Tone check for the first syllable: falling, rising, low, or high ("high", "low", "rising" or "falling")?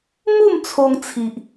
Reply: falling